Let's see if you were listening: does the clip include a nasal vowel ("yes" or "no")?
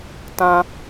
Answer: yes